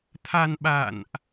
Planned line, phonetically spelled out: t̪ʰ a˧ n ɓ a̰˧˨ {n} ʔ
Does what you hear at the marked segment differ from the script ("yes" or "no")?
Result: no